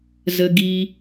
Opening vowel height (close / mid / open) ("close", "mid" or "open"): mid